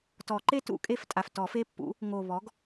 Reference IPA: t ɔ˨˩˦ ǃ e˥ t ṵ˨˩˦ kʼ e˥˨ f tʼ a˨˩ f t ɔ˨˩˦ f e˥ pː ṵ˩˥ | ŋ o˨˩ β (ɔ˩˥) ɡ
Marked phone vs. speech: correct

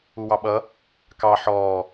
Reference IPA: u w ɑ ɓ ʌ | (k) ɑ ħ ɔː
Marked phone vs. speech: correct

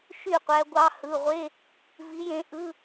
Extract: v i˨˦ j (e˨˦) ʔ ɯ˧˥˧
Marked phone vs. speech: incorrect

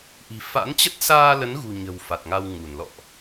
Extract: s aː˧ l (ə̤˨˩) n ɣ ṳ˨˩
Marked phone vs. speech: incorrect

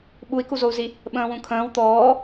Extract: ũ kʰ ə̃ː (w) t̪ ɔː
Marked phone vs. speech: correct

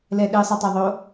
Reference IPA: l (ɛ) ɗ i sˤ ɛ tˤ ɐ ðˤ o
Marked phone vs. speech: correct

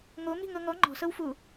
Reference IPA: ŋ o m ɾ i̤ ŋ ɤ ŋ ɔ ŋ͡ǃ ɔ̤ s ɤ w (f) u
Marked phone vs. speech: correct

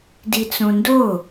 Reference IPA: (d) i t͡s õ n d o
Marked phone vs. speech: correct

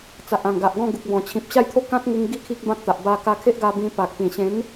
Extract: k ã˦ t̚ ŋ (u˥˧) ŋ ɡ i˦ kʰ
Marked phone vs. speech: incorrect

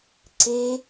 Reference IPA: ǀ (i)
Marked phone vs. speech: incorrect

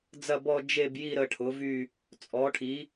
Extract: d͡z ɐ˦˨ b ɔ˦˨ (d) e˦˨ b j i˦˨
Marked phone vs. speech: incorrect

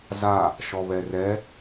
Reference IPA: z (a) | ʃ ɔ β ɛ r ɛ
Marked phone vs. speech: correct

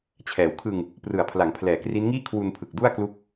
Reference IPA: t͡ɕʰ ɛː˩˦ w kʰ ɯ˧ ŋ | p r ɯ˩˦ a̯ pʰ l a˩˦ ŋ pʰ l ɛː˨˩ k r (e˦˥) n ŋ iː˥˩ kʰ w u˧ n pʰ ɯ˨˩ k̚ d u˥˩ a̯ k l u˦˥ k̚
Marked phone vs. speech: incorrect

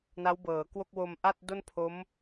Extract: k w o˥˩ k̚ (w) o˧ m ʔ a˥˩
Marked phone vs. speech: correct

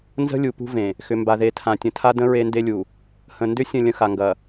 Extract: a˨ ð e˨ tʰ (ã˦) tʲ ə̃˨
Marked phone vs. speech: incorrect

